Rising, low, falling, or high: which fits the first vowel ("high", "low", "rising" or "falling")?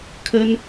high